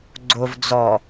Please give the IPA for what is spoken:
ɡ͡ǀ o v d͡z ɔ

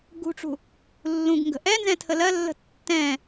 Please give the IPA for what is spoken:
ɡ ṳ ʈ͡ʂ ṳ | lː ũ ɡ ŋ ɡ ə̤ ʔ ɛ n z ɛ̃ tʰ ə l ɜ lː ə̤ tː ɛ̃

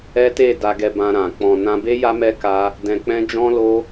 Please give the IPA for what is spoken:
ɛ˦ t e˦˨ d a˧ ɡ ɛ˧ b ã˧ ɾ ã˨ k͡p ɔ̃˨ n ã˧ b e˦ j a˦ m ɛ˦ k a˦ | d ɛ̃˧ k͡p ɛ̃˦ d͡ʒ ɔ̃˦ l o˦

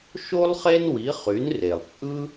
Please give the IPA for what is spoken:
ʃ o˥ lˠ χ e˥ n w i˩˥ χ y˩˥ n r e˩ lˠ t͡sʼ ɯ˥

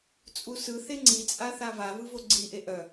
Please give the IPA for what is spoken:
t͡sʼ u s ɯ θ e ŋ͡ǀ i t͡sʼ a θ a v a v ɯ v o ɡ͡ǀ i ʔ e ʔ œ

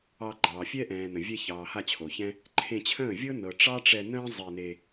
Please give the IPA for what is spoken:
ɑ˧ ɡ͡ǃ ɑː˨ fʲ ɛ˦ ʔ ɛ̃ː˨ n ə̃˨ vʲ ɛ˧ ç ɑː˨ h a˦˨ t͡ɕʰ o˨ ç ɛ̃˦ | ǃʰ ẽ˧ t͡ɕʰ ə̃ː˦˨ vʲ ɤ˦ n ɤ˨ ʈ͡ʂ ɑ˦ ʈ͡ʂ ɛ˧ n ə̃ː˦ zˤ e˧ n e˧

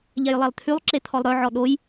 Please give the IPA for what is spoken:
ʎ ɛ j lˠ e lˠ t̪ʰ y lˠ ǁ e t̪ʰ ɔ lˠ ɾ œ ʕ ɔ ɗ o j

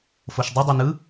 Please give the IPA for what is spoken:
f o ʃ dˤ ɯ dˤ i n ɯ

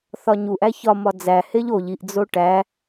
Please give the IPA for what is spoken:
θ ɒ ɲ u ʔ æ ç ɒ m ɒ d͡z æ h e ʎ o ʎ i ʔ d͡z o ʈ æ

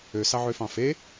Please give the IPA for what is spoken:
ø s ɑ ʕ ø f ɑ̃ f e

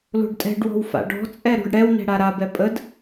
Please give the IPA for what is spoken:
l o̤ ɖ tʼ ɛ̤ ɖ w ɔ̤ w f a̰ ɖ ɔ̤ t͡sʼ ɛ ɾ o̤ ɖ ɽ ɛ w n ɛ̤ ɽ a ɾ a b ɛ pʼ ə d

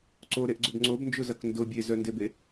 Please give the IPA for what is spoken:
ǀ o ɾ e ʔ ɡ͡ǀ ʊ b ŋ͡ǀ o b n d͡ʒ ʊ z ɐ k n d ʊ bʲ e z œ n d e b e

